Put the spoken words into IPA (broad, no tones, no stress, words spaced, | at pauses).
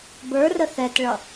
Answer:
bə˞rə θɛtɭʌ